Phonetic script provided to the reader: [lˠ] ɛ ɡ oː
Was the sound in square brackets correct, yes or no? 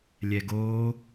no